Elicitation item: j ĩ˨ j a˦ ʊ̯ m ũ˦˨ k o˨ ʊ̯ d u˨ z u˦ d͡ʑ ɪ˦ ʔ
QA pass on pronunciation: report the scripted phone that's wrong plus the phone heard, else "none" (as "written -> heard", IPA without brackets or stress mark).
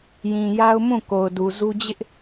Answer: none